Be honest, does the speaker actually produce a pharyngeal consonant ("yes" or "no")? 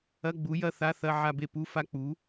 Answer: yes